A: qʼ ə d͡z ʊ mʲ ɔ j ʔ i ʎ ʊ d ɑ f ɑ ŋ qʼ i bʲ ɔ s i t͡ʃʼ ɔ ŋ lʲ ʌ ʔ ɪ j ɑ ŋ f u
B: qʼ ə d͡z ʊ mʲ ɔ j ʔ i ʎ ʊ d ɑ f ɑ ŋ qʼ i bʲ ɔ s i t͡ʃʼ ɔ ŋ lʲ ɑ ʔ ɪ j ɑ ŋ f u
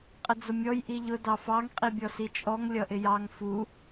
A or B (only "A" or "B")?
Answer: A